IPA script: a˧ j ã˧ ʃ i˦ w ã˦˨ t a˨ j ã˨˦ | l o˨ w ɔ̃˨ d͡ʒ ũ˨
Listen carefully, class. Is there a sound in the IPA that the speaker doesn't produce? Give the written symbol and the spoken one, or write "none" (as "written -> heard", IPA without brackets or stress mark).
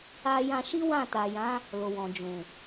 none